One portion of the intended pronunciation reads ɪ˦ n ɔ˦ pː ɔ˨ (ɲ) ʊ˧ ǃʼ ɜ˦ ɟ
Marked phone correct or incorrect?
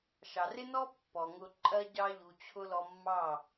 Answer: incorrect